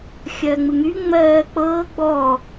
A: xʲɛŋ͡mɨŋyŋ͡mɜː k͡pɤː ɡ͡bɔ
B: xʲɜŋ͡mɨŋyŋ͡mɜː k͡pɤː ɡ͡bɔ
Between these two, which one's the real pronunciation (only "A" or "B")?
B